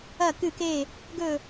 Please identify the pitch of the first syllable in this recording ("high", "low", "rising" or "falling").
falling